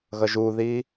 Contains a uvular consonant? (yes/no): no